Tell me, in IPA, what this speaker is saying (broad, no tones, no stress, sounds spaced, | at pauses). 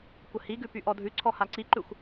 kʷ ə h i ɡ ʉ p y ʔ ɔ dʱ ʉ ǀʰ ɔ h a ǀ i ǃ ʉ xʷ